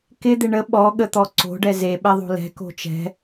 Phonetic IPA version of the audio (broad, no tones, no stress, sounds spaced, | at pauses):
k ɪ d̪ ɪ ɳ ə ɓ ɔ ɠ ə t̪ ɔ ǀ o̤ ɖ ɛ z e ɓ ɛ ðˤ o̤ l ɛ̤ k o̤ t͡ʃ ɛ̤